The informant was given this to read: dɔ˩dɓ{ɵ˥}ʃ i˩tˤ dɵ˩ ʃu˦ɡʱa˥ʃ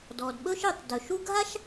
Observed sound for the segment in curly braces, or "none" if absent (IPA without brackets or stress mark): ɵ˥